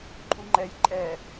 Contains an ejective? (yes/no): yes